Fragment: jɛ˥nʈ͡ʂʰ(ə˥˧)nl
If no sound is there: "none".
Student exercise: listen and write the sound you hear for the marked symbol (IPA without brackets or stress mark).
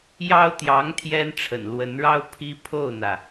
ə̰˨˩